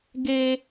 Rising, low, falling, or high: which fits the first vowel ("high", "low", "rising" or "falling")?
high